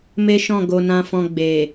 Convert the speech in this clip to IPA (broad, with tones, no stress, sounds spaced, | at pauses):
m e˦ ʃ ɔ̃˦˨ ɡ o˧ n ã˧ f ɔ̃˧ ɡ͡b e˨